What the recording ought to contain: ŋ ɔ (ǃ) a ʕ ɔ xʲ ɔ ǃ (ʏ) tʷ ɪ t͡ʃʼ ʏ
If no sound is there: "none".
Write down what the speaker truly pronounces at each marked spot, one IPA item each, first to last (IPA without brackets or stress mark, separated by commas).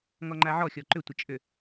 ŋ͡ǃ, ʏ